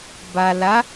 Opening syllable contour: low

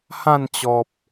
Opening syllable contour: falling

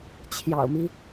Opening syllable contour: low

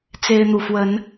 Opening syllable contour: high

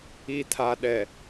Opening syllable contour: low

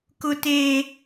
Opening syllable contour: high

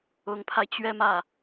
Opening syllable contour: rising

